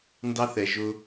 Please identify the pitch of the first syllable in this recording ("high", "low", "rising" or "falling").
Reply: high